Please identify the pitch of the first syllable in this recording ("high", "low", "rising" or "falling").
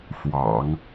low